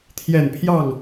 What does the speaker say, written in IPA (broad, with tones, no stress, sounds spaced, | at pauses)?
t̪ʰ j ɛ˨˩ n pʰ j ɑ˥˩ ŋ